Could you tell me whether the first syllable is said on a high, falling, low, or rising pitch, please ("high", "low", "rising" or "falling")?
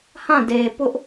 falling